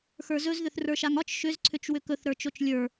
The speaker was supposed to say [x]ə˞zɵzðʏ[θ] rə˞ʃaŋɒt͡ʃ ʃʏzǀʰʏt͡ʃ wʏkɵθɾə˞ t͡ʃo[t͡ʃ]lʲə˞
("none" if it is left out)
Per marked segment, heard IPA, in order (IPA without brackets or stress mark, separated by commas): x, θ, t͡ʃ